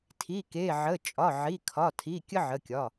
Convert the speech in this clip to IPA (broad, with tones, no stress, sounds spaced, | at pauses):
tʰ i˩˧˩ k e˩˧˩ ʕ ə˩˧˩ t͡ʃʼ ɒ˩˧˩ ʕ i˩˧˩ kʰ ɒ˩˧˩ tʰ i˩˧˩ kʲ ə˦ ʕ ə˩˧˩ kʲ ɒ˩˧˩